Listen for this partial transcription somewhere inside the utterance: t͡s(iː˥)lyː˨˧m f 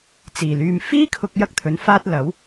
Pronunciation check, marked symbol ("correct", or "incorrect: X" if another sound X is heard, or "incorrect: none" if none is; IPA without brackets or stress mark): incorrect: iː˨˩